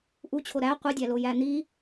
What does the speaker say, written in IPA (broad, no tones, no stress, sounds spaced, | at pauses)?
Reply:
ʔ u t͡ɕʰ o ɾ æ qʷ i dʲ æ l o j æ n̪ i